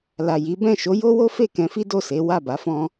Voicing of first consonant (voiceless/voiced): voiced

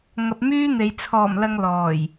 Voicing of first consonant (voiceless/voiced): voiced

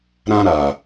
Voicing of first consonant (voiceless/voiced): voiced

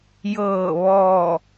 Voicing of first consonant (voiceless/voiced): voiced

